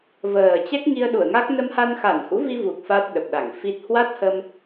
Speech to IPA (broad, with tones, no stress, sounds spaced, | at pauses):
v əː˨˩ t͡ɕ ɛ˦˥ k̚ ŋ i˧ ə̯ ɗ u˧˩ ə̯ ŋ a˦˥ k̚ n ə˧ m h a˧ n x a˧˩ n h ṵ˧˥ v i˧ v u˨˩ k̚ f a˦˥ t̚ ɗ ə˨˩ p̚ ɗ a˧˩ ŋ f i˦˥ t̚ h w a˦˥ t̚ h ə˧ m